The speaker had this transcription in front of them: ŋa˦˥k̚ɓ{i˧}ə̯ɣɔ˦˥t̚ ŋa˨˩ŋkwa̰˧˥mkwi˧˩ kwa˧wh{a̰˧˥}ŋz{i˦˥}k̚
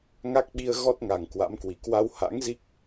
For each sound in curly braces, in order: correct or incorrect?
correct, correct, correct

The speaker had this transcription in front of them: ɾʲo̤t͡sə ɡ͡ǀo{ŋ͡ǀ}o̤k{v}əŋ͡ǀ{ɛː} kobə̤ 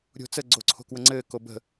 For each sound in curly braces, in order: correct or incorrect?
incorrect, incorrect, incorrect

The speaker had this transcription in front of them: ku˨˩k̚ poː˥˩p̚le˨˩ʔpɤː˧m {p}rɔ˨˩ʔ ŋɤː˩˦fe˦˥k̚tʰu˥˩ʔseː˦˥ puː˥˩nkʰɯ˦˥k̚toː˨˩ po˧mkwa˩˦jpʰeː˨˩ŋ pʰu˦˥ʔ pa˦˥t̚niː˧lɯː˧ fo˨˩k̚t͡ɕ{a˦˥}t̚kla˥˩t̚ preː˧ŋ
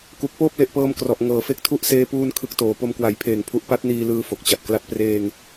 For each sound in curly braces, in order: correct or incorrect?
incorrect, incorrect

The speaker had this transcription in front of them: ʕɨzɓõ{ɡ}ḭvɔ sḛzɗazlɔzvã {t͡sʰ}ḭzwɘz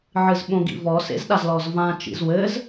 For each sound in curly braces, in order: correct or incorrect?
correct, incorrect

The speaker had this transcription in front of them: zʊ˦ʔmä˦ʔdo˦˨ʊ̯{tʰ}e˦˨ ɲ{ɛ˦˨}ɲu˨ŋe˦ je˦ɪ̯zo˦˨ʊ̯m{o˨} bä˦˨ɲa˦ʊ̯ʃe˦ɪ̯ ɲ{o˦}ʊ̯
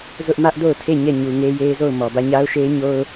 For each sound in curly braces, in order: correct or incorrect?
correct, correct, incorrect, correct

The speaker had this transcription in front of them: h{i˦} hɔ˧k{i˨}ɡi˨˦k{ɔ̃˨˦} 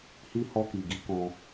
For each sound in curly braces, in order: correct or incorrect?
correct, correct, incorrect

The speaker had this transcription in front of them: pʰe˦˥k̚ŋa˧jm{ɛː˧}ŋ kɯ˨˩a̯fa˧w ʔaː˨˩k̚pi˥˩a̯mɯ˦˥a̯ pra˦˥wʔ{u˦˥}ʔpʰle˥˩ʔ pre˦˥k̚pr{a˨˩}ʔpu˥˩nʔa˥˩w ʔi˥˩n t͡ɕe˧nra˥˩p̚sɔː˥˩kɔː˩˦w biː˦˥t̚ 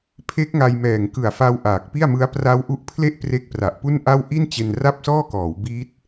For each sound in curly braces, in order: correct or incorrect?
incorrect, correct, correct

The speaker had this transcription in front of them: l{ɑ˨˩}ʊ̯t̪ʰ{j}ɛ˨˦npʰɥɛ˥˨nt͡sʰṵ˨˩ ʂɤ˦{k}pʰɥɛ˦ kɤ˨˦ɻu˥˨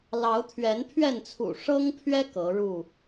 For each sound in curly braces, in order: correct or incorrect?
incorrect, incorrect, incorrect

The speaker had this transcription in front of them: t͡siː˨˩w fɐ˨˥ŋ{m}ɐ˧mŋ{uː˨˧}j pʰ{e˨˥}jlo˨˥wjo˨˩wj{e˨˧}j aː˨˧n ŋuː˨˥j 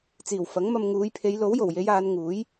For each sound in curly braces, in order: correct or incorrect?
correct, correct, incorrect, correct

